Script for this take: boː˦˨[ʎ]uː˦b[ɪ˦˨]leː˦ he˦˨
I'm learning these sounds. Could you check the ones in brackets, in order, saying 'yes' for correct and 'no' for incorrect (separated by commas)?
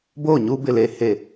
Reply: no, yes